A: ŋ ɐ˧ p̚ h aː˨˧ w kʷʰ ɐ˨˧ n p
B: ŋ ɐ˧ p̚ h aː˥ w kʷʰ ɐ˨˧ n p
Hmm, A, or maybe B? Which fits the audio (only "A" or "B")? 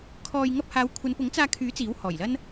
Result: A